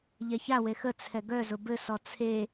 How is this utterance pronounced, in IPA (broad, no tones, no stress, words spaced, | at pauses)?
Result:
ʎɛçawe xət͡sʰɛ ɡœzʊ bɘsɔ t͡sʰe